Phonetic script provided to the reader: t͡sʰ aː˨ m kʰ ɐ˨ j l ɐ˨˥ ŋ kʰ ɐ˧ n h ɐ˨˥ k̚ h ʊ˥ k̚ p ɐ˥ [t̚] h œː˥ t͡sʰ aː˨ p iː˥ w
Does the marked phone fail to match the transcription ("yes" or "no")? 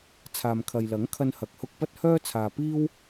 no